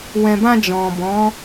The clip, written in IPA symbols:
w ɛ̃˨ b ã˧ d͡ʒ ɔ̃˨ b ɔ̃˨˦

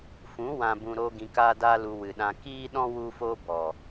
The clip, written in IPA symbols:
f ũ˨˦ w ã˨ b ũ˨ ɾ o˧ ɡ ĩ˧ k aː˦ d aː˦ l u˧ w ɨ˨ ɗ ã˧ k iː˦ ɗ ɔ̃˦ w u˦ f oː˦ b ɔ˨

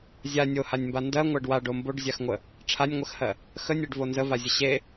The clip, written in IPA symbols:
zʲ a nʲ o h a nʲ m b a n d ɜ ŋʷ ɜ ɖ w a ɖ o m b o ɖ zʲ a x ŋʷ ə | ʈ͡ʂʰ a nʲ ŋʷ ə x h ɜ | x ə nʲ ɜ ɖ v o n z ə v a zʲ ə ɕ e

